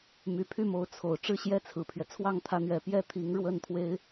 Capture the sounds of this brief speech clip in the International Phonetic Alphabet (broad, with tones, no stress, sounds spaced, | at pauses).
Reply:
m y˨˩ pʰ y˥˩ m o˧˥ ʊ̯ t͡sʰ o˨˩ ʊ̯ ʈ͡ʂ ɻ̩˥˩ ɕ j ɛ˥ t͡sʰ ɹ̩˨˩ pʰ ɥ ɛ˦ t͡sʰ w ɑ˥˩ ŋ t̪ʰ ä˧˥ n̪ ɥ ɛ˨˩ p j ɛ˥ t̪ʰ i˧˥ ŋ ɻ w ə˥˩ n t̪ʰ w e˥ ɪ̯